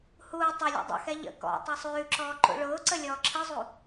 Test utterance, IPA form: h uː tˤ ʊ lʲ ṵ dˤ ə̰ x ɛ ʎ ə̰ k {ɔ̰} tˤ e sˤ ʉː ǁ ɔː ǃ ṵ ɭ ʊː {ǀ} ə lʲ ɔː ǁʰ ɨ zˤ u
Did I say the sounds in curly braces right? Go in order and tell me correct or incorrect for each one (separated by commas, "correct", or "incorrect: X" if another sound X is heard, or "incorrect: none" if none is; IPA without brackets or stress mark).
correct, correct